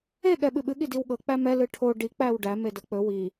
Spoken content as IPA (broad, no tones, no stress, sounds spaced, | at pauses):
e ɠ ɛ ɓ ɨ ɓ ɨ ɠ i d i w ɠ ɤ k͡p æ m ɛ l ɨ ʈʰ o ɖ i k͡p æ w ɖ æ m e d ɤ k͡p ɵ w i